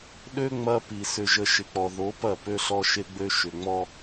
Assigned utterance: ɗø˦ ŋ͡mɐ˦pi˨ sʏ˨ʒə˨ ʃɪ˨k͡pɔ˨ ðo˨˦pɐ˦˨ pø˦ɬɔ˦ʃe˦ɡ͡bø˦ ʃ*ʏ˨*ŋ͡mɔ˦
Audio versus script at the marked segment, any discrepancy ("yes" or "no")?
no